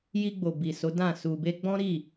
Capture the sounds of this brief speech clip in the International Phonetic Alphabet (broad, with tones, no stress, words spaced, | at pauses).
ji˧ɡ͡bo˨ bi˨so˨˦dã˦˨ su˨be˧ ɡ͡bɔ̃˦ɾi˦˨